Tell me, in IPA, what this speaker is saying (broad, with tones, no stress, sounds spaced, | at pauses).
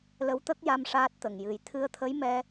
l ə˧˥ w t̪ ə˦˥ k̚ j a˧ m ʂ aː˦˥ t̚ t̪ ə˨˩ ŋ j ɨ˨˩˦ j t̪ʰ ɨ˧ ə̯ t̪ʰ ə˧˥ j m ɛ˧